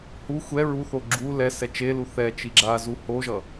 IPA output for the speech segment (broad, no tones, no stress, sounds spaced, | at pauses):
h u xʷ ɛ ɹ u θ o ɡ͡ǁ u l ɛ s ɛ t͡ʃ e l u θ ɛ t͡ʃ i ɡ͡ǁ a z u h o ʒ ʌ